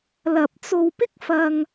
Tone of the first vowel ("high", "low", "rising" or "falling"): low